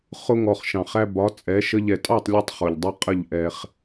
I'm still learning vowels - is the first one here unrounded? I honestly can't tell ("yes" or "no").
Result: no